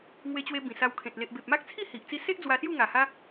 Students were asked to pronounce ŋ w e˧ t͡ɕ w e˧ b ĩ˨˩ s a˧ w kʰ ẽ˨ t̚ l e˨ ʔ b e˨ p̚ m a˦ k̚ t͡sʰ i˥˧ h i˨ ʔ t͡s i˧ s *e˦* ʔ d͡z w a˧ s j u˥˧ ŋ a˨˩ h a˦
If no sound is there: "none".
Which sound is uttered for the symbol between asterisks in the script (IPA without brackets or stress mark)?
e˦